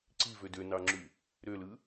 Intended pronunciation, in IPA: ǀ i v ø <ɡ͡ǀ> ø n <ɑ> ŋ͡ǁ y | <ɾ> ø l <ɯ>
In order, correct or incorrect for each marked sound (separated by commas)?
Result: incorrect, correct, correct, correct